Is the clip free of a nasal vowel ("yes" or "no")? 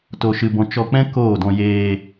no